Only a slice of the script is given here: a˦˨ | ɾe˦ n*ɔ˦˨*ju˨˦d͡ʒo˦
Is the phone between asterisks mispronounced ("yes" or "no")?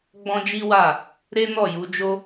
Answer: no